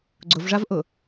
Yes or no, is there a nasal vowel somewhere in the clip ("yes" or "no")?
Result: no